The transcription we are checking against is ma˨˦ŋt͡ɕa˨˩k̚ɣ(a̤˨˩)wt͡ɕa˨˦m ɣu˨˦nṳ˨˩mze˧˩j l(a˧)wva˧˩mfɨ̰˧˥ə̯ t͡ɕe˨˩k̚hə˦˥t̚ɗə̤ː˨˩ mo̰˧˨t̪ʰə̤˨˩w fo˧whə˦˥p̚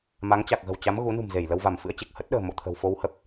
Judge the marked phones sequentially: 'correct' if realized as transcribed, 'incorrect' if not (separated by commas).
incorrect, incorrect